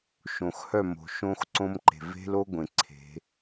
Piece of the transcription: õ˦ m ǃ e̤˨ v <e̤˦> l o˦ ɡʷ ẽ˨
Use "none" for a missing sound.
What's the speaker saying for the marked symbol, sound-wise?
e̤˦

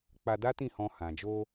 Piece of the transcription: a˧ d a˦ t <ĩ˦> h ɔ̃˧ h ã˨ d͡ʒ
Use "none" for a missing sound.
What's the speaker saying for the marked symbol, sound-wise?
ĩ˦˨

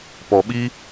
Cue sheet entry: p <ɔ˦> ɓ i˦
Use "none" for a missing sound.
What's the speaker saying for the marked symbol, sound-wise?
ɔ˨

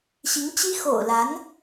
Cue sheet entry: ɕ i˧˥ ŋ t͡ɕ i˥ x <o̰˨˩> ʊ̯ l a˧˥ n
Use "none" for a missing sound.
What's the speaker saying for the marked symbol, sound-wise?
o̰˨˩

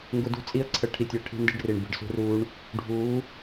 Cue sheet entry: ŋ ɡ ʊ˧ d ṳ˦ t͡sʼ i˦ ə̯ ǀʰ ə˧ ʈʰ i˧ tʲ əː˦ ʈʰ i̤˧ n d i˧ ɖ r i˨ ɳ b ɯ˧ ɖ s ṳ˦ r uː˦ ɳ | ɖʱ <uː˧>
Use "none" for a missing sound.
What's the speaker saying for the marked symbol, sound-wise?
uː˨˦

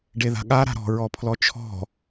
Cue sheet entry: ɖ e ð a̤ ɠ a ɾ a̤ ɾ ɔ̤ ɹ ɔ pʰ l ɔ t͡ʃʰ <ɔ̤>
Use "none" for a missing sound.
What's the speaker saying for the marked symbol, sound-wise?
ɔ̤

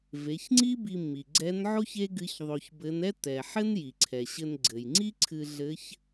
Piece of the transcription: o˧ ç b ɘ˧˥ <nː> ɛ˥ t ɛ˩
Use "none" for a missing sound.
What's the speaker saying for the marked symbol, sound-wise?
n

